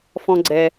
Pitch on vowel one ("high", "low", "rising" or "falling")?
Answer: low